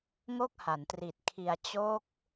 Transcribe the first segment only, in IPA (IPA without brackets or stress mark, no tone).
ŋ